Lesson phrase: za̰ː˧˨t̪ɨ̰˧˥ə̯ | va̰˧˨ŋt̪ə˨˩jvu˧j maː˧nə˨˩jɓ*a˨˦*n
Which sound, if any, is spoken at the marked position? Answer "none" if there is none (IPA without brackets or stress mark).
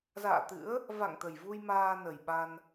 a˧